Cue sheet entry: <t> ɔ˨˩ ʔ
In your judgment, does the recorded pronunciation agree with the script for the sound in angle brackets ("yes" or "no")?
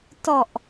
yes